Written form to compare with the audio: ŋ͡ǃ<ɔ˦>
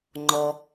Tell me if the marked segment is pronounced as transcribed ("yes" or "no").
no